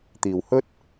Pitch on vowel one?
low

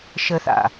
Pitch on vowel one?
high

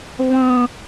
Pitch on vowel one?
low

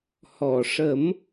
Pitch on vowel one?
low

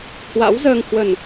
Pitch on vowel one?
rising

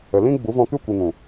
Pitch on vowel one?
low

